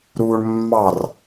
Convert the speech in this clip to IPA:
ɾ uː ɳ mː ɑ r

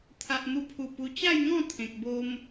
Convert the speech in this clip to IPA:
t̪ʰ a˨ ʔ n̪ u˧ pʰ u˨˩ p u˧ t͡ɕ a˥˧ j ŋ ɔ̃˥˧ t̪ʰ ẽ˨ k̚ b o˦ m

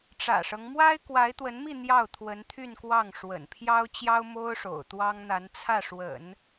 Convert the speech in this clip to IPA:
ʈ͡ʂ ä̰˨˩ ʂ ɤ˦ ŋ m w a˥ ɪ̯ k w a˧˥ ɪ̯ t̪ w ə˧˥ n m i˥˧ n̪ j ɑ˥˩ ʊ̯ t̪ʰ w ə˧˥ n t̪ʰ y˥˧ n k w ɑ˥˩ ŋ ʂ w ə̰˨˩ n pʰ j ɑ˥ ʊ̯ t͡ɕ j ɑ˥ ʊ̯ m o˥ ʊ̯ ʂ o̰˨˩ ʊ̯ t̪ w ɑ˥ ŋ n̪ a˧˥ n t͡sʰ ä˥˩ ʂ w ə̰˨˩˦ n

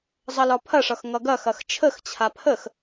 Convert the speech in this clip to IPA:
zˤ ʌ l ɒ pʰ ɐ ʂ ʌ x ŋ ʌ ɡ ɐ x ɐ x t͡ʃʰ ə x t͡ɕʰ a pʰ ə x

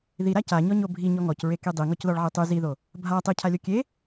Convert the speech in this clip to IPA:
ð i ɾ a c a ɲ ɔ ɲ o bʱ i ɲ ɔ ŋ ɔ c ɹ e k i dˤ i ŋ ɔ c ð ɔ ɭ ʕ i tˤ y z i ð o | bʱ a tˤ i cʰ a lʲ o kʲ e

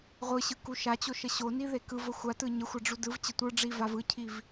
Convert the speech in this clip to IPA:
ʁʷ ɯ ɕ ɯ k u ʃ a t͡ɕ o ʃ ə ɕ o n i ð e k ɯ v ə xʷ a t ɯ ɲ ə xʷ a ɖ͡ʐ u d ɯ v t͡ɕ ə tʷ ɯ ɖ͡ʐ i v a v ɯ cʰ i v

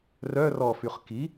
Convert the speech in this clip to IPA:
r œ r ɔ f y χ k i

